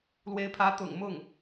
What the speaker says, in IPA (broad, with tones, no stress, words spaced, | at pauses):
lwe˧˥ɪ̯pʰä˧˥ t̪ʊ̰˨˩ŋ mʊ˥˩ŋ